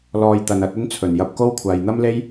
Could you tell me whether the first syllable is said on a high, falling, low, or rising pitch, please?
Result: low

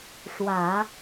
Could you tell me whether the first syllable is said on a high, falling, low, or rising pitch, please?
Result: low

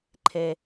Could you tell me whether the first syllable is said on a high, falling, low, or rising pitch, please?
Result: low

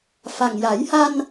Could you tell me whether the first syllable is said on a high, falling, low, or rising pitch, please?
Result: low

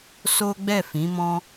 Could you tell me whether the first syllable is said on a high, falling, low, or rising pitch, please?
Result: high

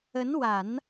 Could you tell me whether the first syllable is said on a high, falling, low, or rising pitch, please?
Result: rising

